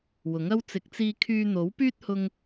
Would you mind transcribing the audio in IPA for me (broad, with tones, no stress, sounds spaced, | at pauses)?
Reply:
w ʊ˨˥ ŋ ɐ˥ w t͡s ɪ˨˥ k̚ t͡s iː˧ kʰ yː˧ n̪ o˨˥ w p yː˥ t̚ h ʊ˧ ŋ